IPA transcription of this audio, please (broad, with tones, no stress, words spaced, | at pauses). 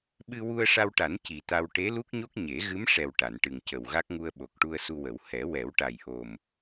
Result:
ɓɨ˧wu˧ə̯ʂa˧wʈa˨˩˦n ci˨˩t̪a˧w ʈe˧˥lu˦˥k̚ɲo˦˥k̚ ɲe˨˩˦ɣɨ˧˥mʂɛ˨˩w ʈa˨˩˨nʈɨ˨˩ŋcə˨˩wɣa˦˥k̚ ŋu˧ə̯ɓo˨˩k̚ʈu˧ə̯ su˧wə˨˩˦w hɛ˨˩˦wɛ˨˩˦wʈa˨˩j ʔo˨˩m